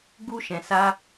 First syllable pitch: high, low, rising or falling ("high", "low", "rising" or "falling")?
high